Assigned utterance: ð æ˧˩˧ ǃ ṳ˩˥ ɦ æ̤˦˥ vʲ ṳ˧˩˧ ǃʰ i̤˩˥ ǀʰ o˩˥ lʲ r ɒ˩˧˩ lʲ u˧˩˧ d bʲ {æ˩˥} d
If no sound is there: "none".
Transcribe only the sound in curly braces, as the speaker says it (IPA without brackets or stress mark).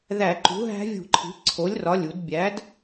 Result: æ˩˥